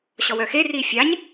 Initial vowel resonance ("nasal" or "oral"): oral